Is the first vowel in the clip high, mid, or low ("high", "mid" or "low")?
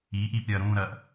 high